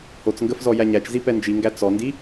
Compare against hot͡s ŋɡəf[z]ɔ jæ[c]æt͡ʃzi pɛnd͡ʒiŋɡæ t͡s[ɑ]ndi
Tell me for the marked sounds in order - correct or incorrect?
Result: correct, incorrect: ɲ, incorrect: ɔ

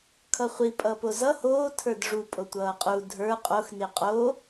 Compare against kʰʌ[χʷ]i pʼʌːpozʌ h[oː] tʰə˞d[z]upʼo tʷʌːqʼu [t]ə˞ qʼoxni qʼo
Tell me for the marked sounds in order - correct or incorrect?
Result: correct, correct, incorrect: ʐ, incorrect: dʱ

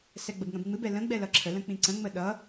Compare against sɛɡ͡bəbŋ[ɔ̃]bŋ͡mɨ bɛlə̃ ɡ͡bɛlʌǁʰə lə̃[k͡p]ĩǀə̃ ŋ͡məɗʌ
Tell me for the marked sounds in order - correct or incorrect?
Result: incorrect: ə̃, correct

